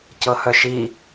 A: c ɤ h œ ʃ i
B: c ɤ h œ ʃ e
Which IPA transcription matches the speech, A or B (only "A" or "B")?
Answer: A